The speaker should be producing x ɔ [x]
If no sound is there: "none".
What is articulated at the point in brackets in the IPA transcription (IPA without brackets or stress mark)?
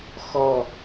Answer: none